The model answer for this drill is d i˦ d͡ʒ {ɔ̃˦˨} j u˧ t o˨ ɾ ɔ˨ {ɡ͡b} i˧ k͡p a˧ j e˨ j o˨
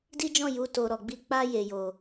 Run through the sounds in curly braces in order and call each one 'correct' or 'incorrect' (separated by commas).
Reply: correct, correct